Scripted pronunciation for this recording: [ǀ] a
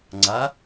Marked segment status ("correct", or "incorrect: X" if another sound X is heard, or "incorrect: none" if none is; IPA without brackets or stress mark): incorrect: ŋ͡ǀ